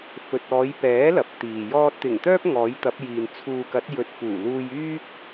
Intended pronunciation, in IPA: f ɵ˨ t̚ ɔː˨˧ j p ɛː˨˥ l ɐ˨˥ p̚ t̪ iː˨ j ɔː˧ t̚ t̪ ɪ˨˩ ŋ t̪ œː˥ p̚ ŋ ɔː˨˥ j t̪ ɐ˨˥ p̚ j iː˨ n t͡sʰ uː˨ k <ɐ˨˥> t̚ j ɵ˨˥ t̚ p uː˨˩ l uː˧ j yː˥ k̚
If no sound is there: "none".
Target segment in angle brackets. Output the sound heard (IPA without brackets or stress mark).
ɐ˨˥